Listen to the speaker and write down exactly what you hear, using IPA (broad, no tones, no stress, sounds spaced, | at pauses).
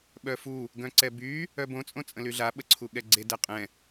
ɓ œ f u | ɡ œ̃ ǀ ɛ b y | œ b õ t͡sʼ õ t͡sʼ ə̃ l y ɮ a ɓ ə ǀʰ u ɠ ɛ ɡ͡ǀ e d ɛ qʼ ɛ̃